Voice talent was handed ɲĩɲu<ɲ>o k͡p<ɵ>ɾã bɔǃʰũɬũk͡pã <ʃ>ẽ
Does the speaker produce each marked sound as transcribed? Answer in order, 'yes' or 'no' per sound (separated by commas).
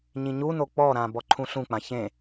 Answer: no, no, no